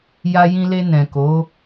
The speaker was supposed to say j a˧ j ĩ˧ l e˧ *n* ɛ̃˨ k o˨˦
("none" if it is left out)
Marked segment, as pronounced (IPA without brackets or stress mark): n